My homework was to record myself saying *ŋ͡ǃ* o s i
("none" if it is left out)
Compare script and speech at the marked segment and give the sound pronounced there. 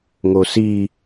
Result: ŋ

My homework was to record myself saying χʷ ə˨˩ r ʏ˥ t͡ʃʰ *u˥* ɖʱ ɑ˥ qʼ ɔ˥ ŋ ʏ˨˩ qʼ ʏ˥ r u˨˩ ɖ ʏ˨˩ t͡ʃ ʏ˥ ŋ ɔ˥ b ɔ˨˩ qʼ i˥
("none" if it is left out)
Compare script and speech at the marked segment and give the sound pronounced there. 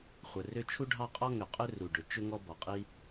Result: u˥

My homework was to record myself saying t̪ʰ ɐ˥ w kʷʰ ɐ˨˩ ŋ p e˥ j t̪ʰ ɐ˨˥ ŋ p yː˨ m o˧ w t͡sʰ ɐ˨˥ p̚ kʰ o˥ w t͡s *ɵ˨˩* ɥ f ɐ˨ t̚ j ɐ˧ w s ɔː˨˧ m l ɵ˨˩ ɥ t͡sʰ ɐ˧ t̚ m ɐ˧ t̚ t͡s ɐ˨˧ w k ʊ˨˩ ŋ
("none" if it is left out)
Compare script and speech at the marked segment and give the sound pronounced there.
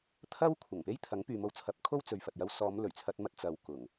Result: ɵ˨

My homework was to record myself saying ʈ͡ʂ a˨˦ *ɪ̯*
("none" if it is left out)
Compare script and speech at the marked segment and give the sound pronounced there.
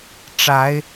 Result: ɪ̯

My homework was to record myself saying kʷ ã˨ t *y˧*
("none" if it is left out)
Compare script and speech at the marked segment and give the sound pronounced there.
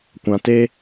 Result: e˧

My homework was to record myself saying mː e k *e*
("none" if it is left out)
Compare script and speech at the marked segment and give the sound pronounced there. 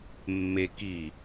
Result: i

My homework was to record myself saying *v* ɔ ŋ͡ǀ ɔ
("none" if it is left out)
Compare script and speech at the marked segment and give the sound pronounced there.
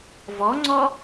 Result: v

